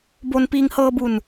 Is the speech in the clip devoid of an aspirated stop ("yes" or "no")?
yes